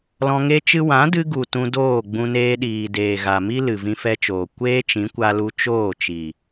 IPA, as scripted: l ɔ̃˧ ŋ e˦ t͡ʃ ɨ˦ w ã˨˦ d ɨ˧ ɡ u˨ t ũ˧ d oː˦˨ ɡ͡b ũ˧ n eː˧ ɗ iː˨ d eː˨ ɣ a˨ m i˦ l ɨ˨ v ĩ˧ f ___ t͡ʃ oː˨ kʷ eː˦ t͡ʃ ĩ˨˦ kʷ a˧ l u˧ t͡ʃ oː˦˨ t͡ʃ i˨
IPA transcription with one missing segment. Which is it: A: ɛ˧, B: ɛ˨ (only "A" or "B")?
A